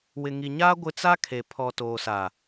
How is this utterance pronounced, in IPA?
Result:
w ɪ˨ ŋ i˨ ɲ aː˦ ɡʷ ɪ˦ t͡s a˦ kʰ e˨ pʰ ɔ˨ t oː˨ s a˨

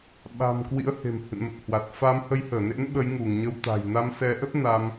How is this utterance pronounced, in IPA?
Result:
ɓ a̤˨˩ m k w ḭ˧˥ ə̯ h e̤˨˩ m h ɨ̰˧˨ n m ə˨˩ t̚ h w a˨˩ t̚ f a˨˦ m h ə˨˦ j h əː˧˩ n ḛ˧˥ n ɓ ə˨˦ j ŋ u˧˩ ŋ ɲ ə˧ w t̪ a̤˨˩ j n a˧ m s ɛ˨˦ ʔ ə˦˥ t̚ n a˧ m

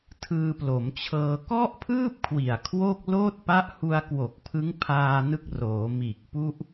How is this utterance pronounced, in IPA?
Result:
tʰ ɯː˧ p l o˩˦ m t͡ɕʰ ɤː˧ k ɔ˥˩ ʔ pʰ ɯː˥˩ p̚ kʰ w i˨˩ a̯ kʰ w o˥˩ k̚ l oː˥˩ t̚ p a˦˥ ʔ h u˧ a̯ k w o˨˩ k̚ pʰ ɯ˦˥ ŋ pʰ aː˧ n ɯ˦˥ k̚ r oː˩˦ m iː˨˩ k̚ p u˥˩ ʔ

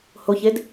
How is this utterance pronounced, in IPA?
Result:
h o ç e d

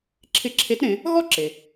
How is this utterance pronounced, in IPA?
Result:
ǁʰ ɪ˧˥ ǁʰ e˧˥ t ɾ ẽ˩˧ | ɣ ɔ˥ ǁ e˩

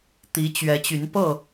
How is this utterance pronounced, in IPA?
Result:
t̪ i˨˦ t͡ɕ ɥ ɛ˨˦ t͡ɕ y˨˦ n p ɤ˥˨

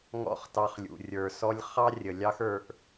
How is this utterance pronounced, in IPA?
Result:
ŋ ɔ̰˦ χ t ɑ˧ χ lʲ ṵ˨ rʲ ə˞˨ s ɔ˧ lʲ χ ɑ˦ rʲ ə˨ lʲ ɑ˦ x ə˞˧ ʔ

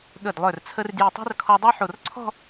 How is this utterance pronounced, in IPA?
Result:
ɠ ə˧˩ d lˠ œ˧˩ r t͡sʰ ə˧ r d j i˧˩ tˤ ɛ̤˥ r kʰ ɔ˧ dˤ ɛ˥ ħ o˧˩ r ǀʰ ɔ̤˥˧

